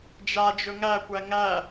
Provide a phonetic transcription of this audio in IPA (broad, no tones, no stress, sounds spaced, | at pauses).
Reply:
d͡ʒ a d͡ʒ ɵ ŋ æ kʷ æ ŋ æ